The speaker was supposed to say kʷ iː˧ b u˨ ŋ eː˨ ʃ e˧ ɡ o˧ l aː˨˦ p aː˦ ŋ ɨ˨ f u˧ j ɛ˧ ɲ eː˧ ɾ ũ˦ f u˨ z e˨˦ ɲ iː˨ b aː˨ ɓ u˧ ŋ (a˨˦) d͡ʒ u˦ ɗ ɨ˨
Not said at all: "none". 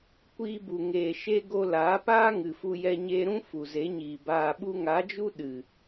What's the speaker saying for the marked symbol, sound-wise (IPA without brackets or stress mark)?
a˨˦